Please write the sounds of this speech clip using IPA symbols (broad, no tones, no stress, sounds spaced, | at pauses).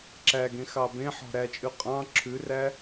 ǁ æ ɡ ẽ x ɑ b ẽ ħ ɔ̤ ɾ æ t͡ʃʼ ʉ qʼ ɑ̃ ǁʰ ʉ r æ